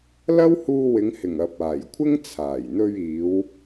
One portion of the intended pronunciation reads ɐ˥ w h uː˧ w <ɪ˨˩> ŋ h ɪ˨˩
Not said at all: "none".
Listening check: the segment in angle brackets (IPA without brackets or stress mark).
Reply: ɪ˨˧